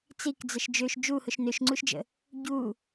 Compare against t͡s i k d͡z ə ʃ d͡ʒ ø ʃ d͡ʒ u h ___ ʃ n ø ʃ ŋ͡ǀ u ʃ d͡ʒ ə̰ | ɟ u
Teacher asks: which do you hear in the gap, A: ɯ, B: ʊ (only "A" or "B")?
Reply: B